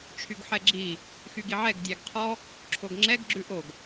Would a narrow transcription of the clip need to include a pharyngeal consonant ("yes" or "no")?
yes